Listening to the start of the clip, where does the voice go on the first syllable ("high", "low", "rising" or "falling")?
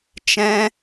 high